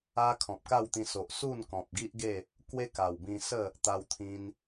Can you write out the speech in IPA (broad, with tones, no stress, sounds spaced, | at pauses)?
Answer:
a˦ kʰ ɔ̃˨ p̚ k a˥˧ w t̪ ĩ˧ s o˨ ʔ s u˥˧ n k ɔ̃˨ p̚ ɡ i˦ ʔ ɡ e˥˧ | k w e˦ k a˨˩ w b ĩ˧ s ə˥˧ | t̪ a˧ w t̪ʰ ĩ˧ n